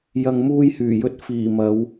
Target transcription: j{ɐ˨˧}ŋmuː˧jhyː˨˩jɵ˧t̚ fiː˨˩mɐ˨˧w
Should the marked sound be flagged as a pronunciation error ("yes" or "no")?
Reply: yes